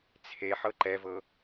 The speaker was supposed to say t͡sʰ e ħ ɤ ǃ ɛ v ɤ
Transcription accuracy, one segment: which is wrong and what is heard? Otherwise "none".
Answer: none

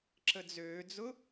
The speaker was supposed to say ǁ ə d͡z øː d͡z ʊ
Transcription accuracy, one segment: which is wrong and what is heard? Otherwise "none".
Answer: none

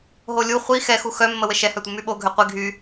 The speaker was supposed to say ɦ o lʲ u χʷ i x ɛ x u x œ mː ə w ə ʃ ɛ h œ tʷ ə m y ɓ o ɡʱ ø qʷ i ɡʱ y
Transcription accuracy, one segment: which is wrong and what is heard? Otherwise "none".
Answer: none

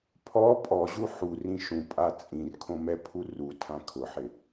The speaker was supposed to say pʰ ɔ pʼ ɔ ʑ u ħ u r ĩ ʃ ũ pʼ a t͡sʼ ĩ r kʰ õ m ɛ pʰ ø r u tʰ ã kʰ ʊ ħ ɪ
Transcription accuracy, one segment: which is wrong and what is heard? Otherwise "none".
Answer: ø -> u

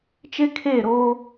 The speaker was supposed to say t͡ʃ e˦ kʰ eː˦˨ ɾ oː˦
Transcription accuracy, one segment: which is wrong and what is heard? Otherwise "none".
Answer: none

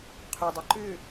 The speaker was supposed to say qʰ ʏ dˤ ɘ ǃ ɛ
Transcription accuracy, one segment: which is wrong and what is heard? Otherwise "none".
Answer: ɛ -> ʏ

